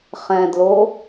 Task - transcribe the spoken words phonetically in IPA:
χ ɛ̃ d l o

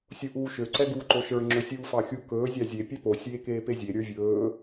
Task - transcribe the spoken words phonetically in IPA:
sʲ u ʔ uː ʃ ø ǀ ɛ ɡ uː ǃ o ʃ ə˞ ŋ͡ǁ ɵ sʲ uː f ɑ xʲ u k ɵː zʲ ɑ zʲ e pʲ ɛ p o sʲ eː k eː p e zʲ e ɾʲ ə˞ vʲ ɵː

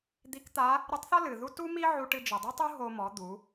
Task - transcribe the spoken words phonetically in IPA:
d̪ i˧˥ k t̪ a˧˥ | ɾ ɨ˧˥ tˤ θ ɔ˥ l ɨ˩ ð u˥ t u˥ m i˥ ʕ u˧ ʈ ɨ˧ d͡ʒ ɨ˩ dˤ ɨ˥ tˤ u˥ ɦ o˧ m ɔ˩˧ d̪ u˩˧

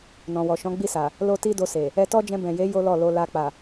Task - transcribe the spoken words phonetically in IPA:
n ɔ̃˨ w ɔ˨ ʃ ɔ̃˨˦ ɡ͡b i˦˨ s a˨ | l o˦ t i˦ d o˧ s e˨ | ɛ˧ t ɔ˦ d͡ʒ ɛ̃˧ b ɛ̃˨ j e˨˦ j o˦ l ɔ˦˨ l o˧ l a˧ k͡p a˨

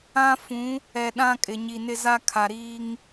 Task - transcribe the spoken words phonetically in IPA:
ã˦ f ũ˨˦ | ɛ˨ ɗ ã˦ kʼ ɪ˨ ɲ i˨ n ɪ˦ z a˦ kʰ a˨ ɾ iː˦ ŋ

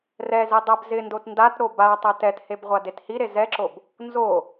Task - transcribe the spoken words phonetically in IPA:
r ɛ z i dˤ ɛ b z ɪ n d o t n d a t ɾ o b a tˤ ɛ t ɛ t h e b ʁʷ a d e t h i ɾ e z ɛ ǁ o b | n z o

